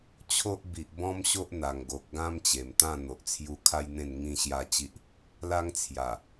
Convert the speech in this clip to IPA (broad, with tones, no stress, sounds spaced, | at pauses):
t͡ɕʰ o˦ ʔ b i˨ ʔ b ɔ̃˦ m ɕ o˦ ʔ n̪ a˨˩ ŋ ɡ o˨ k̚ ɡ ã˦ m t͡ɕ e˨˩ m t̪ ã˥˧ n̪ o˨ ʔ t͡sʰ j u˧ kʰ a˦ j n̪ ẽ˥˧ n ŋ ĩ˥˧ ɕ j a˦ t͡ɕ i˦ ʔ | l a˦ ŋ t͡sʰ j a˨˩